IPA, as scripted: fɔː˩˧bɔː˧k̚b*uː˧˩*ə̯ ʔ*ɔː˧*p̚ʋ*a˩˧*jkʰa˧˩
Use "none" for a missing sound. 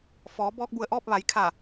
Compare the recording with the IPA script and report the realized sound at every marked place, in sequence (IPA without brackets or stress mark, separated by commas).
u˧˩, ɔː˥˨, a˩˧